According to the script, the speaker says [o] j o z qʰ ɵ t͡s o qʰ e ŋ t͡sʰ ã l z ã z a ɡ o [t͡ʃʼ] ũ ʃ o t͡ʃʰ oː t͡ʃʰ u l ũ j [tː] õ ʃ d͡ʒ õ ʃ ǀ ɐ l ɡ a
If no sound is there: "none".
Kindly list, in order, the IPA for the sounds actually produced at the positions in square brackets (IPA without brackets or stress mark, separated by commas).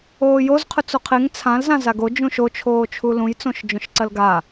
oː, d͡ʒ, t͡s